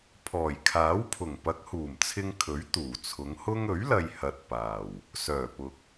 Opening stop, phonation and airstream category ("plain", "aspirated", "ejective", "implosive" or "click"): aspirated